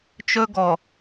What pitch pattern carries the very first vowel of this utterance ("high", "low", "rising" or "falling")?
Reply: high